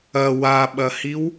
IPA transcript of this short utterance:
ɐ w a ɓ ɐ h i w

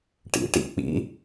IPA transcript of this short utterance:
ʈ ḭ ʈ ḭ k͡p ḭ

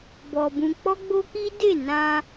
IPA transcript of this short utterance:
b ɔ˧ b ũ˧ k͡p ɔ˦ ɡ͡b o˦ k i˦ d e˦˨ n ã˧

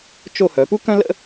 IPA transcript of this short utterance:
t͡ʃ o˥˧ h œ˩˧ p u˥ k œ̃˥ l ə̰˥

